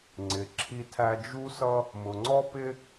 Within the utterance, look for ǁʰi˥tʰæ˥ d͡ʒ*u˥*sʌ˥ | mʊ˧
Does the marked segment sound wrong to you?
no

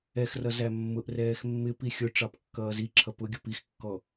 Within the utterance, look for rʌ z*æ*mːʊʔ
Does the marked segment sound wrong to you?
no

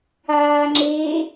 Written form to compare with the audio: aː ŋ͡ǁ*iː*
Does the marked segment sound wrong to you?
yes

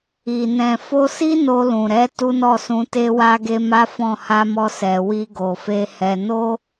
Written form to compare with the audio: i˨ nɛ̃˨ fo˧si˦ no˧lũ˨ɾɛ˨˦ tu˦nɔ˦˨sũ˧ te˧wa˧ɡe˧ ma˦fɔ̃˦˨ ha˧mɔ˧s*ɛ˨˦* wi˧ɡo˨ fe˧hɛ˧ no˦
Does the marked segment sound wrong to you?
yes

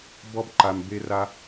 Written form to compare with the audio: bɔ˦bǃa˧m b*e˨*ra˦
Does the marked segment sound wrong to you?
yes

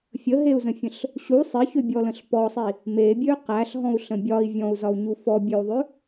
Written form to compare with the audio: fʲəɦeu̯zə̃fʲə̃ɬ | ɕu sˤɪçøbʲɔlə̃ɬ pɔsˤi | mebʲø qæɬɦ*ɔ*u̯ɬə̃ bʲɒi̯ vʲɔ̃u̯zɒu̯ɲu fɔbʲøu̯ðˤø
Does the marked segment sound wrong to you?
yes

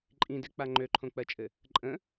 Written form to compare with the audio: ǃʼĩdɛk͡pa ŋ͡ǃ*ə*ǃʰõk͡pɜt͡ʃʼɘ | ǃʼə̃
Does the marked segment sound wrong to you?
yes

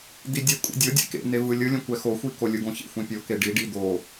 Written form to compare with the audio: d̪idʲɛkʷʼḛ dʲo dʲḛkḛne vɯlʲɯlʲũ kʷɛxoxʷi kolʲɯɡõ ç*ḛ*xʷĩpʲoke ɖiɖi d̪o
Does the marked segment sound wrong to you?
no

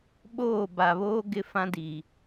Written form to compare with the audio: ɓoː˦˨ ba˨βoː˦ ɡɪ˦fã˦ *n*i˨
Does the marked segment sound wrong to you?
yes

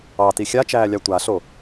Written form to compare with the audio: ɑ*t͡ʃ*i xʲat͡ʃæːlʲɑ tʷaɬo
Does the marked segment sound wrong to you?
yes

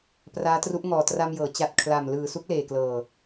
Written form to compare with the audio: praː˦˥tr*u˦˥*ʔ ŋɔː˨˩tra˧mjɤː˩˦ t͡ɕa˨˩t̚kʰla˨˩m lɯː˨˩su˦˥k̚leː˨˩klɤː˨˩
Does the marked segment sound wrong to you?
no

